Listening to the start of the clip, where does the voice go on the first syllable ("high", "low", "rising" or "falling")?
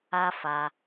high